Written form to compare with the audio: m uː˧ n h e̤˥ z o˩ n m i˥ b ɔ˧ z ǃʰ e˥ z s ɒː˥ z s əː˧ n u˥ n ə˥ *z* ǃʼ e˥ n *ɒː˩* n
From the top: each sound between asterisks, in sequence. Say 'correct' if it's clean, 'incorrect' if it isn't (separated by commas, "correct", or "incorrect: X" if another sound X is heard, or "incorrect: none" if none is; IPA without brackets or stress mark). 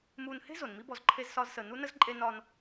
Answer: correct, incorrect: ɒː˥